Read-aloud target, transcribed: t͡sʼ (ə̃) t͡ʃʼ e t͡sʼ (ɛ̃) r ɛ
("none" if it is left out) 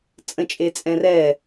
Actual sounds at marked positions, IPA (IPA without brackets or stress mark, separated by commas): ə̃, ɛ̃